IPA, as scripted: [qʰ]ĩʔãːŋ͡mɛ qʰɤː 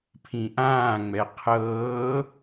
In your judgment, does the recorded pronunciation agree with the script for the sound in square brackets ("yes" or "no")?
no